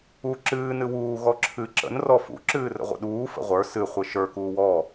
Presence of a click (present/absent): present